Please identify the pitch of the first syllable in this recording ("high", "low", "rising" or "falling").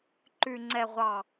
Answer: low